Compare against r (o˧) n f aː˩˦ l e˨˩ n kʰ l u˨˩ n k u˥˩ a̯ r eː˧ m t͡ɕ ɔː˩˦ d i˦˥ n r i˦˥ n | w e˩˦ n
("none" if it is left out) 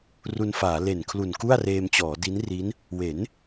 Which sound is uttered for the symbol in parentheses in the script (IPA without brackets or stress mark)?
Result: u˧